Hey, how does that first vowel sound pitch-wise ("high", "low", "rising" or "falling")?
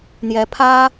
rising